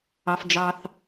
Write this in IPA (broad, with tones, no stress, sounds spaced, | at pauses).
ɑ˩ f d͡ʒ ɑ˩ θ